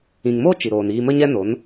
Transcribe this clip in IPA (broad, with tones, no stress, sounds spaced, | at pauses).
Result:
ĩ˨ ŋ m oː˦ t͡ʃ i˨ ɾ oː˨ n iː˧ m ə˦ ɲ ɛ˦ n o˨˦ n